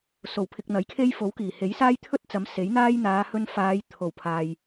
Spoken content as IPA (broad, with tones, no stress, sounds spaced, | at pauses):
s o˨˩ w pʰ ɪ˨ k̚ n̪ ɐ˨˥ j kʰ e˥ j f o˨˥ w k iː˨˩ h e˨˥ j s aː˥ j t̪ʰ ɵ˥ t̚ t͡s ɐ˨˥ m s e˨˥ j n̪ aː˥ j n̪ aː˨˧ h ɵ˧ n f aː˨˧ j t̪ʰ o˨˩ w pʰ aː˨ j